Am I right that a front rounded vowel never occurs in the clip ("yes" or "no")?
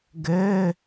yes